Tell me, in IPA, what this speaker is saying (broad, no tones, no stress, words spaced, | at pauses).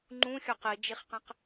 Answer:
ŋ͡ǃũxʲɒ qid͡ʒiχqẽq